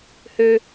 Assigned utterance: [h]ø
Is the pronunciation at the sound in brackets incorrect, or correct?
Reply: correct